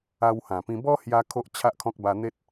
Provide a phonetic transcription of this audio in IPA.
a˧ w h ã˨˩ p ĩ˧ b ɔ˦ h j a˧ kʰ o˦ ʔ t͡ɕʰ a˦ ʔ kʰ ɔ̃˦ k̚ b a˧ n̪ e˦ t̚

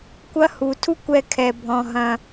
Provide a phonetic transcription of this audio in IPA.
kʷ ɐ˦ h u˨˦ tʰ u˦ kʷ ɛ˧ kʰ ɛ˧ bʱ ɔ̃˧ ɦ ɐ̃˧

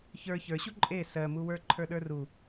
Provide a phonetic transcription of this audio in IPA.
ç ə˞ ç ə˞ ɕ u ǃʼ e s ɜ m u w ə˞ ǃʰ ə˞ ɗ ə˞ r u

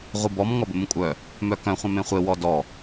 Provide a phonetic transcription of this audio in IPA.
ʁʷ ɯ b ɔ m ŋ ɔ b ɘ m ũ kʷʼ œ | m œ k œ̃ χʷ œ̃ m ẽ χʷ e w ɔ d ɔ

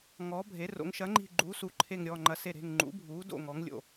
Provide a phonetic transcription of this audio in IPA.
ŋ ɔː˩˥ bʱ e˩˥ r o̰˩˥ ŋ ʃ ɐ˩˥ ŋ͡ǃ i̤˧˩ ɡ͡ǃ uː˩˥ s u˩˥ ǃʰ e˧˩ ŋ ɾʲ ɔː˧˩ ŋ͡ǃ ɐ˩˥ s e˧˩ ɾ e̤˧˩ ŋ ŋ͡ǃ ṵ˩˥ bʱ uː˩˥ d o̰˧˩ ŋ ɔ˩˥ ŋ lʲ o̰˧˩

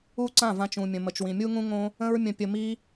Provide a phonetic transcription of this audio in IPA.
u˦ ǀ ã˦˨ v ã˧ t͡ʃ ũ˨ mʲ ə̃˨ m ə˨ t͡ʃ w ĩ˨ mʲ u˦ ŋ ũ˦ ŋ õ˦ | ə̃˦ ɹ mʲ ə̃˧ pʲ ə˧ m i˦

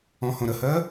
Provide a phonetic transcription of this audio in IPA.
ɔ̃ h õ ɾ ə h ɜ

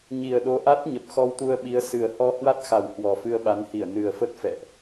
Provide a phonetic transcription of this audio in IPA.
ɲ i˨˩ ə̯ ɗ o˨˦ ʔ a˦˥ t̚ ɲ ə˨˩ p̚ x ɔ˧ w t̪ u˧ ə̯ ɓ i˨˦ ə̯ s ɨ˨˩ ə̯ h ɔ˧ h w a˦˥ t̚ x a˨˩ w h w ɔ˨˩ f ɨ˧ ə̯ ɓ a˨˦ n h i˧˩ ə̯ n ɨ˨˩ ə̯ f ə˦˥ t̚ f ɛ̰˧˨ ʔ

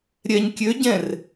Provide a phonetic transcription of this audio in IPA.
ɾʲ ɛ ɲ kʲ ø ɟ ɛ̃ r

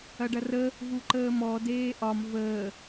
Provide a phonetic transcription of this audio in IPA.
ɐ ɖ ɐ r ə | v u ǃ əː m ɔ d eː ʔ ɒ m v əː

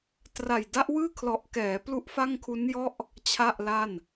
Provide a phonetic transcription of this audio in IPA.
t r a˨˩ j d a˦˥ ʔ w ɯː˥˩ kʰ l ɔ˨˩ ʔ k ɛː˩˦ p l u˦˥ ʔ f a˥˩ ŋ kʰ u˦˥ n j ɔ˥˩ ʔ | t͡ɕʰ a˥˩ ʔ l a˥˩ n

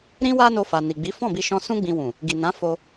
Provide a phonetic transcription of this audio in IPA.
ɾ ĩ˦ w a˦ n o˧ f a˨ n i˨ ɡ͡b i˨˦ f ɔ̃˦˨ b i˧ ʃ ɔ̃˧ s ũ˦ ɡ͡b ĩ˧ w ũ˨ | ɡ i˨ n ã˨˦ f o˦

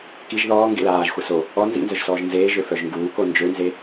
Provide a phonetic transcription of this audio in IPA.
k i ʒ ð ɔː ŋ ɡ ḛ l aː ʒ xʷ ə s o | ɔ n z ḭ n z œ ʒ s ɔː ʒ n z eː ʒ ø f œ ʒ ŋ ɡ uː k o n d͡ʒ ø n z e

